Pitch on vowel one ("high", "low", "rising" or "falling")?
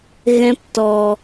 high